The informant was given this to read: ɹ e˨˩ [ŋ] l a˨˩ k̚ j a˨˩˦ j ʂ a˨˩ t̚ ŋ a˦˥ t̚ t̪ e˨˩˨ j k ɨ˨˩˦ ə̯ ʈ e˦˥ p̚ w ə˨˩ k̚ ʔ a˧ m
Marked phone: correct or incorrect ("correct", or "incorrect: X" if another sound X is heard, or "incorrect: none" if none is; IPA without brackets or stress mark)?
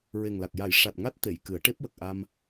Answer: correct